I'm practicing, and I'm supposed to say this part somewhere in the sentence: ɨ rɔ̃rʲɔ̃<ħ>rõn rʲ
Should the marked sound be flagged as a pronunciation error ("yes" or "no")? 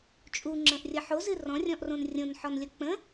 yes